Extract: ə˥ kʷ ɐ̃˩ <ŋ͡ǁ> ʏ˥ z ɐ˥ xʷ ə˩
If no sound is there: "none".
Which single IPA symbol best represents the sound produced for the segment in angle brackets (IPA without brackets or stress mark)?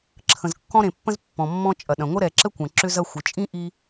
ǁ